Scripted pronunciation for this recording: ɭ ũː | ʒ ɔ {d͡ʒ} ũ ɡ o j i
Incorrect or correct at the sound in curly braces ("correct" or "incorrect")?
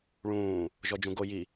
correct